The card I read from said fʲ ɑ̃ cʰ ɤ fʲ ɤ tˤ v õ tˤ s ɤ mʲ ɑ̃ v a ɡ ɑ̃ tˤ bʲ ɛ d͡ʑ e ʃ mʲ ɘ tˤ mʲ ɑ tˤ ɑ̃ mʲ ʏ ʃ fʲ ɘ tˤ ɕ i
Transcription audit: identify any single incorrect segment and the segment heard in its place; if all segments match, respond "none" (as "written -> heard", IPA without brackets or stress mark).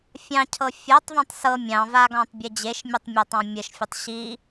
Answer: ʏ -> ə